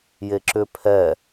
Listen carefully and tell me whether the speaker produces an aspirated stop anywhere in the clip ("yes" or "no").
yes